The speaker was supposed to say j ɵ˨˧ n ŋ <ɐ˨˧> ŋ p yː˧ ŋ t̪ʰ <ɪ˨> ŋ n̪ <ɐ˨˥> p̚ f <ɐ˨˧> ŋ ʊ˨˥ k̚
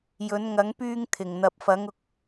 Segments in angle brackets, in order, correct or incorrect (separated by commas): correct, correct, incorrect, correct